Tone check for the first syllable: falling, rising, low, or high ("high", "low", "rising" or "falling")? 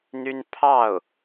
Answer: high